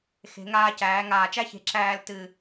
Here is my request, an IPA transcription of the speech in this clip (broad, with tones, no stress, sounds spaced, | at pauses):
x e̤˩˧ ŋ aː˧ c æː˩˧ ŋ aː˧˩ t͡ʃ æ˥ ç e̤˧ ǁ æː˥˧ l t ɨ˧˩